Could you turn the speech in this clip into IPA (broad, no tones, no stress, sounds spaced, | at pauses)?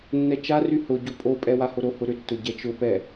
nː ɛ t͡ʃ a r y h ʊ ɟ o pʼ o pʼ ɛ w a h o ɾ o h ʊ ɾ ʏ tː ʊ ɟ ɛ t͡ʃ ʊ p ɛ